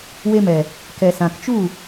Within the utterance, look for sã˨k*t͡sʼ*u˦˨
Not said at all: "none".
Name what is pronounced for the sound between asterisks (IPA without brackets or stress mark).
t͡ʃ